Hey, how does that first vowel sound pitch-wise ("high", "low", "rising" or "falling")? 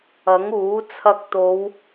rising